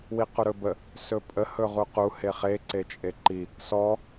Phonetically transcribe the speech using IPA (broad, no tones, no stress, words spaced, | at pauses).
wiquɾɵbə | sɵpʼə hɵʁuqu heχe ǀet͡ʃʼeǃi | sɔ